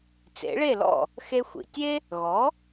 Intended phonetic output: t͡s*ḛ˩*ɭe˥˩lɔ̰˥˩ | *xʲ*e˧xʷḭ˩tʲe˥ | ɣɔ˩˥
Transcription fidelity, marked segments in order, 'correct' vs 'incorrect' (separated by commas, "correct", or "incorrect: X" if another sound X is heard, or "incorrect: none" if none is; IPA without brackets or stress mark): incorrect: ḛ˩˥, incorrect: x